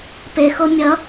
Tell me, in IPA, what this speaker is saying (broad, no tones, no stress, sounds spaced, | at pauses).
p e x o mʲ ʌ